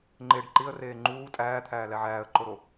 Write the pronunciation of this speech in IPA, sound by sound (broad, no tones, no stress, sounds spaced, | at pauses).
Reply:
ŋ͡ǃ e ɖ ǃ i ə̯ r eː ŋ͡ǃ uː tʼ æː t̪ʰ æː l æ ʕ æː ə̯ ǃ o ɾ o